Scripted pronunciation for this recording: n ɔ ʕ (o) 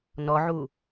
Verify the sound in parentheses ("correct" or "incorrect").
incorrect